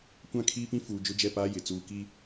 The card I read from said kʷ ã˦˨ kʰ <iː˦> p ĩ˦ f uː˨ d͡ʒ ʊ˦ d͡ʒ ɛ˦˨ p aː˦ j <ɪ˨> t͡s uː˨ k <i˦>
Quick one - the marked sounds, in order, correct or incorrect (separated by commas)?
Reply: correct, correct, correct